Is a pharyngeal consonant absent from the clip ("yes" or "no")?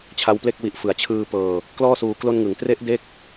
yes